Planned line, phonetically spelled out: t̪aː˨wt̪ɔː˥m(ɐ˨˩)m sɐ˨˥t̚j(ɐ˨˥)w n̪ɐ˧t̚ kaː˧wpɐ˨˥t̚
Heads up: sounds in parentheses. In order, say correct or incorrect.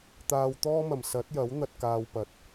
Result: correct, correct

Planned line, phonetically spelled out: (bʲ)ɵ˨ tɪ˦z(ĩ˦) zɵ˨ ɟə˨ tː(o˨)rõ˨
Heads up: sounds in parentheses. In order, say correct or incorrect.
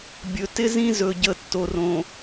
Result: correct, correct, correct

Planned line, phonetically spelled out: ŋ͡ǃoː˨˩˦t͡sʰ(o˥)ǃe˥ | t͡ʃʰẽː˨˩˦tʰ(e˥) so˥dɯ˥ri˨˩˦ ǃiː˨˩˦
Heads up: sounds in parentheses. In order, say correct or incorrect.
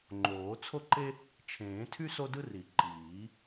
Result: correct, incorrect

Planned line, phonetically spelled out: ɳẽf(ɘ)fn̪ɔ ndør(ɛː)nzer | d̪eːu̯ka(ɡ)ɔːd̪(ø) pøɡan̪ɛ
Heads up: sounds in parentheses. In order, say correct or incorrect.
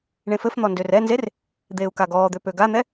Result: correct, incorrect, correct, correct

